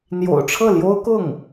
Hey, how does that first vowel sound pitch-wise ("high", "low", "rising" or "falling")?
low